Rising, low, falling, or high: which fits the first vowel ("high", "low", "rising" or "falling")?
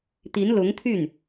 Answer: rising